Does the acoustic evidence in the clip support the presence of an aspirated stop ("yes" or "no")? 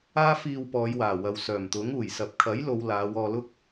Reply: yes